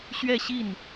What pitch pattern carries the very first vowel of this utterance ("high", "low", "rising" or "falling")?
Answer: falling